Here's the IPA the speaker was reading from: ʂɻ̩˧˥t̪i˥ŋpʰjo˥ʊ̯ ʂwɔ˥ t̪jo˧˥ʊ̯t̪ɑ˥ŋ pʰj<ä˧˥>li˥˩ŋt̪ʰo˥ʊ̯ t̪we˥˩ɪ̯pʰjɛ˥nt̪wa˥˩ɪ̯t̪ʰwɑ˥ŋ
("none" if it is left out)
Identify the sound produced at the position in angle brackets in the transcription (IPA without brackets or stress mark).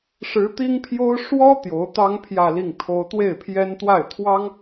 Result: ä˥˧